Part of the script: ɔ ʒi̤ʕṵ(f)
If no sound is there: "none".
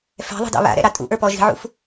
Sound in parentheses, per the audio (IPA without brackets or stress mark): f